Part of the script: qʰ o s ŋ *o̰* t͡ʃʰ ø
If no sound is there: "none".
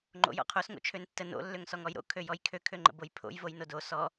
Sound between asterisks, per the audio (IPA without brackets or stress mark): o̰